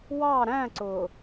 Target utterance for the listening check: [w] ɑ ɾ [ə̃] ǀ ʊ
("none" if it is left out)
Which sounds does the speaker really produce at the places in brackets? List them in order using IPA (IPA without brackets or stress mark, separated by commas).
w, æ̃